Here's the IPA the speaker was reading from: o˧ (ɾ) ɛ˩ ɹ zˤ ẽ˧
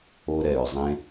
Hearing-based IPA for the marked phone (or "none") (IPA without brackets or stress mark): ɾ